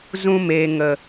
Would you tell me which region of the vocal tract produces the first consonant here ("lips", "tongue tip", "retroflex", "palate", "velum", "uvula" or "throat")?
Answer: tongue tip